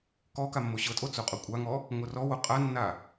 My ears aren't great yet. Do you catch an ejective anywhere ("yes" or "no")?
yes